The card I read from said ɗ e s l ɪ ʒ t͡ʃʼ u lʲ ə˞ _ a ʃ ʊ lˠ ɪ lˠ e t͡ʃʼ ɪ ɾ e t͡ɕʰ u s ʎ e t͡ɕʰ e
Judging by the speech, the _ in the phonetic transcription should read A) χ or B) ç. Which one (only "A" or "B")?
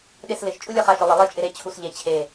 A